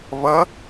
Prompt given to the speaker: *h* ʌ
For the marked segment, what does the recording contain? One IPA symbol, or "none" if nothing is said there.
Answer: β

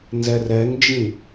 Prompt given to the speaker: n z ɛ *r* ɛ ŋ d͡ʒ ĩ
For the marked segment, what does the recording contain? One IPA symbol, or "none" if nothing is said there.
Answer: r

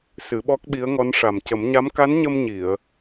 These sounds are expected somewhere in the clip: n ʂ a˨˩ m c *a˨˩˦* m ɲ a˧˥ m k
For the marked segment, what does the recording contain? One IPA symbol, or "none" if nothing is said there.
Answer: ə˨˩˦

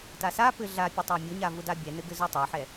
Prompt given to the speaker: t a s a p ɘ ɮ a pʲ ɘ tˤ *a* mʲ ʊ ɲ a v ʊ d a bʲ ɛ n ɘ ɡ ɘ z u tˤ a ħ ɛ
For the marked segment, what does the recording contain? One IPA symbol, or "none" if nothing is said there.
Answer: a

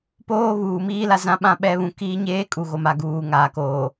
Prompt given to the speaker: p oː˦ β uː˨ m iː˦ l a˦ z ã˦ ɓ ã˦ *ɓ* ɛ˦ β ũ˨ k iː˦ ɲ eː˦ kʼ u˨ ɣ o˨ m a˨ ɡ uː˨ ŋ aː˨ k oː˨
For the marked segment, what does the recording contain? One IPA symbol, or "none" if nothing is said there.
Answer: ɓ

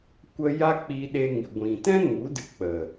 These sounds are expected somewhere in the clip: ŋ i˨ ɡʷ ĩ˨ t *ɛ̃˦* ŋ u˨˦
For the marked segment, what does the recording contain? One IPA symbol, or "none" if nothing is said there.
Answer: ɛ̃˦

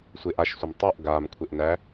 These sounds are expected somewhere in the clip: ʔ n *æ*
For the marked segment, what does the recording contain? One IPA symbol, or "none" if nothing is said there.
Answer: æ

